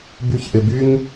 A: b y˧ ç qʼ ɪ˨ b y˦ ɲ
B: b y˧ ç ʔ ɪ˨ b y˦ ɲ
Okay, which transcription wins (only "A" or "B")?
B